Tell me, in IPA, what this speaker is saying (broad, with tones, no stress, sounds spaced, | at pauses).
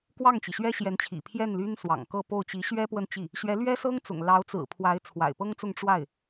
k w ɑ˥˩ ŋ t͡ɕ i˩ ɕ ɥ ɛ˥ ɕ j ɛ˧˥ n t͡ɕʰ ḭ˨˩ pʰ j ɛ˥˩ n l y˥ n s w ɑ̰˨˩ ŋ k ɤ˥˧ p o˥˩ ʊ̯ t͡ɕ i˧˥ ɕ ɥ ɛ˥ p w ə˥˧ n t͡ɕ i˥˩ | ɕ ɥ ɛ˧˥ l ɥ ɛ˥ s ɤ˥ ŋ t͡s ʊ̰˨˩ ŋ l ɑ˧˥ ʊ̯ t͡s ɹ̩˨˩ pʰ w a˧˥ ɪ̯ t͡sʰ w a̰˨˩ ɪ̯ p ɤ˥ ŋ t͡s ʊ˥˧ ŋ ʈ͡ʂ w a˥˩ ɪ̯